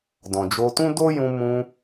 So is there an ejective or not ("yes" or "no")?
no